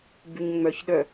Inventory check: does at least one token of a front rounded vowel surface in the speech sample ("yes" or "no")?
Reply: yes